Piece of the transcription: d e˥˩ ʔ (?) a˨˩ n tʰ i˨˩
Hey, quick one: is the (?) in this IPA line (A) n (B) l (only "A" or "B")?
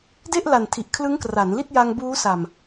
B